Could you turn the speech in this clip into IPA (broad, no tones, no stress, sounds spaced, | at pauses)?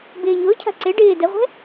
b ɪː ɲ ʊː cʰ a̤ ǀ e ɖ ɪː d ɛ ʁʷ ɛ̤